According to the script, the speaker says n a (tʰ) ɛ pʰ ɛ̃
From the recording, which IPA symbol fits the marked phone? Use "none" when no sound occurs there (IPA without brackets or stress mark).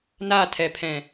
tʰ